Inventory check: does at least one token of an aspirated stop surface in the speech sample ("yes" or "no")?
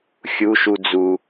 no